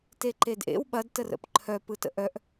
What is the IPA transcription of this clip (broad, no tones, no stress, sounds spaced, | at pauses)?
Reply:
t e ǃ e d ʔ ḛ w ɓ ɐ d t ə r ə̰ p ǃʰ œ p ɯ t ə̰ ʔ œ ʔ